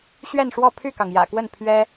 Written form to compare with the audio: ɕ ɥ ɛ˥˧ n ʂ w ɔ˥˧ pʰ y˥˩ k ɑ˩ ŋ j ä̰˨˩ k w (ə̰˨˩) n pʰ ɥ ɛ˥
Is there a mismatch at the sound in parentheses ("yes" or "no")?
yes